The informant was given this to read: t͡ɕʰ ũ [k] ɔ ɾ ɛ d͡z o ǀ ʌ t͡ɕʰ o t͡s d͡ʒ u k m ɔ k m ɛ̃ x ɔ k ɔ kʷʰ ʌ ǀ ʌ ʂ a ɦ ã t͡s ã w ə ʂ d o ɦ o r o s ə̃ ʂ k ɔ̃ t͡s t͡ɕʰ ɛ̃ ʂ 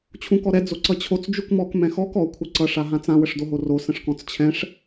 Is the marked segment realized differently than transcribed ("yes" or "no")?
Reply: no